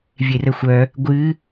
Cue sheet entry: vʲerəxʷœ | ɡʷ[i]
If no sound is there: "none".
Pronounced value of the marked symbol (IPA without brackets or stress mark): ɨ